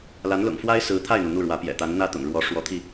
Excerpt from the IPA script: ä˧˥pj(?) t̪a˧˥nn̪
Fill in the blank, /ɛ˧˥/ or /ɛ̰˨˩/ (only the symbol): ɛ̰˨˩